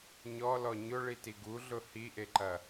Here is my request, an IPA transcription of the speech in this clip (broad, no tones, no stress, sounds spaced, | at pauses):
ɲ ɔ l ɔ ɲ ʊ ɭ i t i ɡ u ɮ ʊ h i ʔ e ǃ ɐ